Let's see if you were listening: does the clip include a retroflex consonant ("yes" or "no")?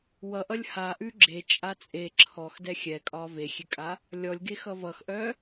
no